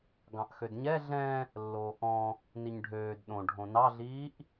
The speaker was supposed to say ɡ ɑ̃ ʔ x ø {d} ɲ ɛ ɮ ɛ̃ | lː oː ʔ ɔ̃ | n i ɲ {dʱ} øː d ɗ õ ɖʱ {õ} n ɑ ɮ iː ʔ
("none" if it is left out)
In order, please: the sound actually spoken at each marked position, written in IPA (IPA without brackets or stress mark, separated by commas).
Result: d, ɖʱ, õ